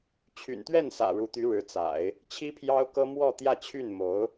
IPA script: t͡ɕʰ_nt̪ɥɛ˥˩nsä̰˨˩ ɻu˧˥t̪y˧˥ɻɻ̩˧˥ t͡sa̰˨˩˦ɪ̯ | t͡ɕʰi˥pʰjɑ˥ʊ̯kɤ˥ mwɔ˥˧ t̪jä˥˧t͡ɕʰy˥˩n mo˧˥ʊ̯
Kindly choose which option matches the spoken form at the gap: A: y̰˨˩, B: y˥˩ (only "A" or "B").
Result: A